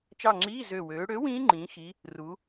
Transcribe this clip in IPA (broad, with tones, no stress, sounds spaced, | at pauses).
t͡ʃ ɑ˦˨ ŋ͡ǁ iː˧˥˧ z ø˨˩ w øː˩˧ ɽ ø˨˥ w ĩː˦˥ ŋ͡ǃ ĩː˩˧ x i˩˧ | r u˩˧